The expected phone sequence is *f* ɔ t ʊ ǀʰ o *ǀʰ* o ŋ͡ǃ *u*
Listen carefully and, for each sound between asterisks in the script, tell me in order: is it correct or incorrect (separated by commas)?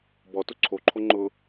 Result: incorrect, incorrect, incorrect